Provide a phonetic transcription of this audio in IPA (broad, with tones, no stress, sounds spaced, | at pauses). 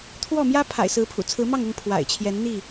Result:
t̪ʰ w ɔ˥˨ m j ä˦ pʰ a̰˨˩ ɪ̯ s ɹ̩˨˦ pʰ ṵ˨˩ t͡sʰ ɹ̩˨˦ m ɑ˥˨ ŋ ʊ˥˨ ŋ pʰ w a̰˨˩ ɪ̯ t͡ɕʰ j ɛ˨˦ n n̪ i˥˨